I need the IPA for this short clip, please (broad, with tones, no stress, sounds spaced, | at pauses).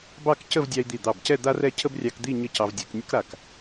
b ɑ˥˧ k c ə˥˧ v dʲ ɑ˧ i̯ d̪ i˧˩ d̪ ɑ˧˩ b c ɛ˥˧ d̪ a˥ r ɛ˥˧ cʰ ə˥ b rʲ ɑ˧ k d̪ i˥˧ ɲ ə˥˧ c ɑ˧ v dʲ ɛ˩˧ k nʲ ə˥ k ɾ a˧˩ k